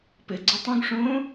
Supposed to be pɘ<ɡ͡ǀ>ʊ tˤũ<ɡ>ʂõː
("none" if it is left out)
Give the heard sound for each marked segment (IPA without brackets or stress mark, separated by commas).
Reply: ɡ͡ǀ, ɡ